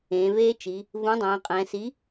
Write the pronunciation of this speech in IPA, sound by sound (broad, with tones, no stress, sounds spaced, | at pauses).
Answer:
ẽː˩˧ v eː˦˥ t͡ʃ i˩˧ | v ũ˨˥ dˤ ɛ̃ː˩˧ qʼ ɛ̃˩˧ s i˨˥